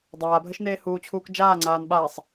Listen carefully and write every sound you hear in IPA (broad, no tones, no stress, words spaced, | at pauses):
dˤaːbʱəʃ neːhuːt͡ɕʰuːk d͡ʒaːŋ͡ǀaːn ɓaːsˤ